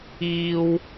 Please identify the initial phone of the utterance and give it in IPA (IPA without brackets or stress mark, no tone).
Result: iː